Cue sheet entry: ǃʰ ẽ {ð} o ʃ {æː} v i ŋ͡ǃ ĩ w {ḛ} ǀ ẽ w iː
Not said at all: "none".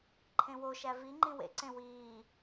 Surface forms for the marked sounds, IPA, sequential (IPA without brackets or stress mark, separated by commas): w, æ, ḛ